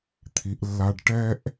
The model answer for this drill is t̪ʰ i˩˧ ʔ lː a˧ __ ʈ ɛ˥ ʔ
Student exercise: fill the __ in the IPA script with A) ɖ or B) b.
A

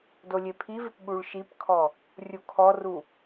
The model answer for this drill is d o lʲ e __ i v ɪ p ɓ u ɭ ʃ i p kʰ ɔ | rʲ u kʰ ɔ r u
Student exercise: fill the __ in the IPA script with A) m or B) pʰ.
B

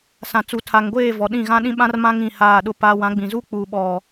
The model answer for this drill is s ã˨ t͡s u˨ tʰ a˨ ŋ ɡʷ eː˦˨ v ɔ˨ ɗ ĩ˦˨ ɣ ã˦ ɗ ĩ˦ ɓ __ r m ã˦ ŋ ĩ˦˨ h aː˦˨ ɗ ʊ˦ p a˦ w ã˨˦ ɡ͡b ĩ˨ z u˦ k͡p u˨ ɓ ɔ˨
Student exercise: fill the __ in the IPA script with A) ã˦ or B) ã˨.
A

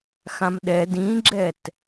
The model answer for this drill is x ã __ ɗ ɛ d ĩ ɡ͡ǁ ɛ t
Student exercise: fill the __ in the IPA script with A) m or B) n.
A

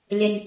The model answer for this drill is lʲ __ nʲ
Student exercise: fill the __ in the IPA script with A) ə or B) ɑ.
A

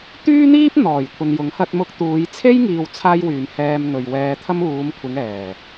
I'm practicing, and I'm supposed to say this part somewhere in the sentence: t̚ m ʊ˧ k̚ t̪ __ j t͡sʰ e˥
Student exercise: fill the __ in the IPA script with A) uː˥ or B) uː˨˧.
B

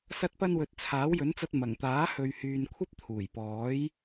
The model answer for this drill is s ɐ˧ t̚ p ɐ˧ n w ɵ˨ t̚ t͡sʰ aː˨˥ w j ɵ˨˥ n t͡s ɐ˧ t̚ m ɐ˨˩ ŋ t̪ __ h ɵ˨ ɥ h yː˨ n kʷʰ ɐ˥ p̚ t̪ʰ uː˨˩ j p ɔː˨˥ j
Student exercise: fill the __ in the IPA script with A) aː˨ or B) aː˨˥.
B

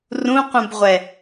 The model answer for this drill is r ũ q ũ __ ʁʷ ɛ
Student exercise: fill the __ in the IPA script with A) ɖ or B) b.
B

